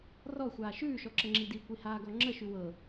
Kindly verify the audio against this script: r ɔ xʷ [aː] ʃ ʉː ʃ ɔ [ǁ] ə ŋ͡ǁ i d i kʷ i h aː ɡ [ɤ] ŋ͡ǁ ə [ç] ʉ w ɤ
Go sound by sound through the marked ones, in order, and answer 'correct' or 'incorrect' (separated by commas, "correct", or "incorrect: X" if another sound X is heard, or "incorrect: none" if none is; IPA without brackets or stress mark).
correct, correct, incorrect: ɔ, incorrect: ʃ